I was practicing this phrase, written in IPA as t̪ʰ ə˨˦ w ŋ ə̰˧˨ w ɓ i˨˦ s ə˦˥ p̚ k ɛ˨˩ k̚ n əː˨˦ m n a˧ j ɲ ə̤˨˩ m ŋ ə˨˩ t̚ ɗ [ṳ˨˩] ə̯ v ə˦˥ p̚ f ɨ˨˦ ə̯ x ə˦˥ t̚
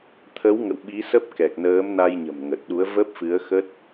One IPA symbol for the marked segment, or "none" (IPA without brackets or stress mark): u˨˦